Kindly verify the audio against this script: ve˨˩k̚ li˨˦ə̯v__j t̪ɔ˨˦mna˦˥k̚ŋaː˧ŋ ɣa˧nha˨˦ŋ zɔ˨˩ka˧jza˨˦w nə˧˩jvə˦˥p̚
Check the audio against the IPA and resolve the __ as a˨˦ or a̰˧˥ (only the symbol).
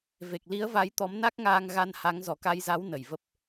a˨˦